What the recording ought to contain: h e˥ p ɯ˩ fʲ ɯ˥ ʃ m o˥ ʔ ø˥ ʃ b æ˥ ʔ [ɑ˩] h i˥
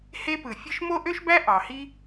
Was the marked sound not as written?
no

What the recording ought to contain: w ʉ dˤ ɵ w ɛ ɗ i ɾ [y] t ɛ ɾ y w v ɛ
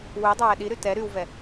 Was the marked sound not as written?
no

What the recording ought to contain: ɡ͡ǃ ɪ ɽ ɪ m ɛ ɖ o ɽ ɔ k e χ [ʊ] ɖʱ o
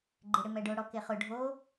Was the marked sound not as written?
no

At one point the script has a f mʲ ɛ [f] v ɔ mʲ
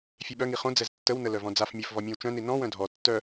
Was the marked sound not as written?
no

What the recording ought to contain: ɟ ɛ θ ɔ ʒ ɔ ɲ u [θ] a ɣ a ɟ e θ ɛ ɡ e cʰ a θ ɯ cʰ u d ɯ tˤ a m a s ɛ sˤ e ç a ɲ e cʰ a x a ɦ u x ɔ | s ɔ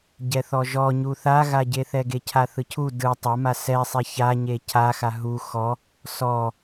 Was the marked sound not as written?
no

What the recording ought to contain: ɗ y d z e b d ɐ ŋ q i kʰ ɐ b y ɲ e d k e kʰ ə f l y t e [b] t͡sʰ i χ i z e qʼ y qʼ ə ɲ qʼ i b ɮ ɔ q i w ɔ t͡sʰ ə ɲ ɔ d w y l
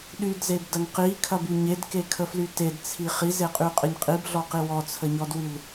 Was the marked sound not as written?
yes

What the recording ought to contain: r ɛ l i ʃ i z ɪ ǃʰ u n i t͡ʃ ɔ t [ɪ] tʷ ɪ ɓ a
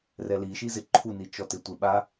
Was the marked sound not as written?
no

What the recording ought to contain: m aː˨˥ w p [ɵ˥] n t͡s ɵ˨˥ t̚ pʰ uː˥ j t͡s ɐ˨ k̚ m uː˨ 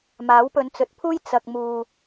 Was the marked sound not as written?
yes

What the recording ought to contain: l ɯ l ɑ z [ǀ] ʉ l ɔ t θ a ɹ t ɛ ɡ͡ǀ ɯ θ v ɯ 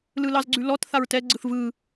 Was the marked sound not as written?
yes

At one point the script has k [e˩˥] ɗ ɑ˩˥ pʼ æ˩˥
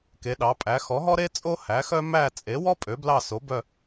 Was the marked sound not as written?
no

